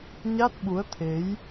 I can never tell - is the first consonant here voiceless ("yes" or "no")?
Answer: no